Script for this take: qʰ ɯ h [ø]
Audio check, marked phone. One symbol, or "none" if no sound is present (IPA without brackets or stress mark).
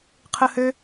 ø